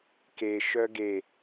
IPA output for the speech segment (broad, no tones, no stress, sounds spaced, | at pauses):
k e ʃ œ ɡ e